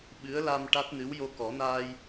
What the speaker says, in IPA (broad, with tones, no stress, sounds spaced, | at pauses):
ɓ ɨ˧˥ ə̯ l a˧ m ʈ a˦˥ t̚ n ɨ˧˥ w j o˧ k ɔ˨˩˦ n aː˧ j